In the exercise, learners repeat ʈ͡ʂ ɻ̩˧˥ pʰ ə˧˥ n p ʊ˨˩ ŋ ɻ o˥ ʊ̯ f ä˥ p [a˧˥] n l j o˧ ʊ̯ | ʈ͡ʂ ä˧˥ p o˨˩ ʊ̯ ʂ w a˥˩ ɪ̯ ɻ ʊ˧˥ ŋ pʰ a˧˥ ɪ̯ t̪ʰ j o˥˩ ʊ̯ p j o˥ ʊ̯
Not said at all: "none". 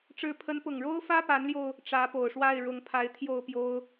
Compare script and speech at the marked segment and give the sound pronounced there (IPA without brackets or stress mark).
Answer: a˧˥